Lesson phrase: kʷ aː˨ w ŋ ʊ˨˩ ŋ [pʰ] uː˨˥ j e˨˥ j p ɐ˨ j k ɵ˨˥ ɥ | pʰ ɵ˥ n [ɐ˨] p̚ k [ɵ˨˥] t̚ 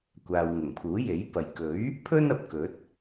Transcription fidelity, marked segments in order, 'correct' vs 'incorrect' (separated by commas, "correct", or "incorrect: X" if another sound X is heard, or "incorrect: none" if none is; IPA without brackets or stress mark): correct, correct, correct